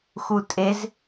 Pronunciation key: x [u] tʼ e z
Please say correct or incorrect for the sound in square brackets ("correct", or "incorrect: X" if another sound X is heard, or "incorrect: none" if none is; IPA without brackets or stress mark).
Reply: correct